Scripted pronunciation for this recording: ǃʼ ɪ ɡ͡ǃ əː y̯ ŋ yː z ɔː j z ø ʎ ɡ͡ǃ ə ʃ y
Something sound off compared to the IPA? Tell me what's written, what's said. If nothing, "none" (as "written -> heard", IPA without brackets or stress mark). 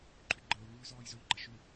ɪ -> y